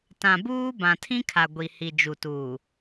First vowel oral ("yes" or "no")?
no